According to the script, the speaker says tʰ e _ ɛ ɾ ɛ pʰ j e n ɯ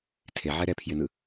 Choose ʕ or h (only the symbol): ʕ